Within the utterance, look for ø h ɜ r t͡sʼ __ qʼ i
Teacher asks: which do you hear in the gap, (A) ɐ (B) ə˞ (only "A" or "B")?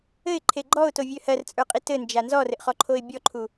B